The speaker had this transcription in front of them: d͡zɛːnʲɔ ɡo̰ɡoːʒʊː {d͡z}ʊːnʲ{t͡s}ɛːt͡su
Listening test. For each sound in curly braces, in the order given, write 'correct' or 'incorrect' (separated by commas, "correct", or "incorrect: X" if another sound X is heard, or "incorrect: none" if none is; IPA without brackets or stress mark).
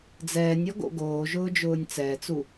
incorrect: d͡ʒ, correct